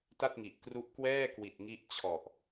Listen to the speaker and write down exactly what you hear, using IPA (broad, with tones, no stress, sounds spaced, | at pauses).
t a˥˩ t̚ ŋ i˨˩ ʔ k r u˦˥ ʔ k w ɛː˥˩ k w i˨˩ t̚ ŋ i˦˥ ʔ t͡ɕʰ ɔ˨˩ ʔ